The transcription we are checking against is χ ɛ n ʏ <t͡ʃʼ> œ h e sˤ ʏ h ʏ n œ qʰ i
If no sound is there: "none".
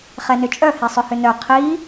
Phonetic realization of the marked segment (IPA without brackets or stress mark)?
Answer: t͡ʃʼ